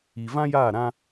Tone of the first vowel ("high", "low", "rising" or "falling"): low